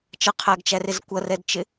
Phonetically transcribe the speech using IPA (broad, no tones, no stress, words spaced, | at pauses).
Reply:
t͡ʃʌqʰæɡt͡ʃærɪz kʷʌrɛdt͡ʃɪ